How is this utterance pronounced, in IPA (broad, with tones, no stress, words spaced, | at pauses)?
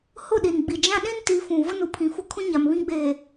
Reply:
hʊ˦˨ ɗi˨nɡ͡bi˨ d͡ʒã˦ɗĩ˦n ti˨˦ fũ˨ vʊ˦nu˨pʰĩ˨fʊ˦ kʰũ˦ɲa˨m βĩ˦ɡ͡beː˨